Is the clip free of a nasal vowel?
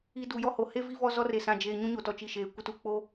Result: no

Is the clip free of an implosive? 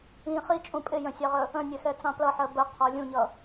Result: yes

